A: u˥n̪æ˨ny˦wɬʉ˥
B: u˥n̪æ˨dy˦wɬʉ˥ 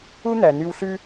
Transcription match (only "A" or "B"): A